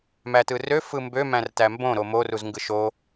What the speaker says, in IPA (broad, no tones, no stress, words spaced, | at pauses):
mætɯrø fɯmbø mæ̃rtæmbõ ɾomo ruzŋɡɯʃo